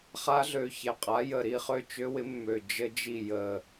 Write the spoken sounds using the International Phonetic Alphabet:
χ a˦˥ ɮ ø˨˩ ç ɛ˨˩ qʼ a˨˥ j ə˨˩ ɾ i˥˨ χ ø˥˨ t͡ʃ ø˦˥ w ɪ˨˥ mː ø˨˩ d͡ʒ ə˦˥ d͡ʒ i˥˨ j ə˨˩

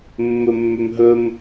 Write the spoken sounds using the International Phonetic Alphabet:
mː ɵ mː ʏ m ɦ ɵ m

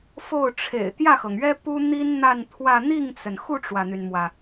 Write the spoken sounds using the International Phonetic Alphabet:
f o˥˩ ʊ̯ ʈ͡ʂʰ ḛ˨˩ ɪ̯ t̪ j ä˥˩ x ɤ˩ ŋ ɥ ɛ˥ p u˥ n̪ i˥ n n̪ a˥˧ n t̪ʰ w ä˥˧ n̪ i˥˩ ŋ t͡s ə˩ n x u˥˩ ʈ͡ʂ w ä˩ n̪ y˩ n m w ä˩

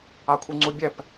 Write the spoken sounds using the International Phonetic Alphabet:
a kʷʰ i ŋ͡ǀ u bʲ ɛ p

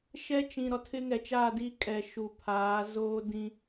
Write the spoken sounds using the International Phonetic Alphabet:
ʃ ɛ˦ t͡ʃ ĩ˨ ɾ ɔ˨ tʰ ɪ˦ ŋ ɛ˨ t͡ʃ aː˦˨ d i˦ kʼ ɛ˨ ʃ u˨ pʰ aː˨˦ z oː˦ d ĩ˦

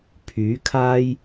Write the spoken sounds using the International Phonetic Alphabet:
pʰ yː˨˥ kʰ aː˥ j

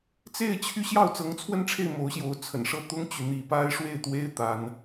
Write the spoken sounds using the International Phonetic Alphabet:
t͡s e˥˩ ɪ̯ t͡ɕʰ y˥ ɕ j ɑ˥˩ ʊ̯ t͡s ɤ˧˥ ŋ t͡sʰ w ə˥˧ n ʈ͡ʂʰ e˥˩ ɪ̯ m o˧˥ ʊ̯ ɕ j o˧˥ ʊ̯ t͡sʰ ə̰˨˩ n ʂ ɤ˥˩ t̪ ʊ˥ ŋ t͡ɕ y˨ n̪ i˥˩ p a˥ ɪ̯ ʂ w e˥˩ ɪ̯ t̪ w e˥ ɪ̯ t̪ a˥ n

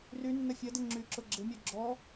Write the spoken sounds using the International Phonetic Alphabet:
r y nː ɐ fʲ ɐ d ə ŋ͡ǁ y ǁ ʊ ɡ͡ǁ ɪ mʲ œ ɡ͡ǁ ɔ

